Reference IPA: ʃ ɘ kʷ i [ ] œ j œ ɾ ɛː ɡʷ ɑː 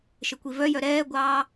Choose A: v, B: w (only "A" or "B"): A